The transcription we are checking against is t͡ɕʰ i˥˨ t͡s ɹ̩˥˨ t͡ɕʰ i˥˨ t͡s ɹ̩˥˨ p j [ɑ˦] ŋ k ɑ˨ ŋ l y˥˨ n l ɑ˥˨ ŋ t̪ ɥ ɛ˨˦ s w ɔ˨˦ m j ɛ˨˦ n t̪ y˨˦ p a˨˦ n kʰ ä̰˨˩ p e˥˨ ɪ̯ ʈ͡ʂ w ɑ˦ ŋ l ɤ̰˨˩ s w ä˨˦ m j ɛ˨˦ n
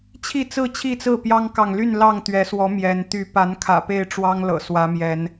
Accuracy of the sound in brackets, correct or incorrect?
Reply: correct